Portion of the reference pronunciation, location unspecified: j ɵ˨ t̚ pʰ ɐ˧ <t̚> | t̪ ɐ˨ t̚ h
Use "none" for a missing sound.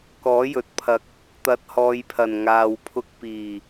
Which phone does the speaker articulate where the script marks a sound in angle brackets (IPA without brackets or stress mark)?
k̚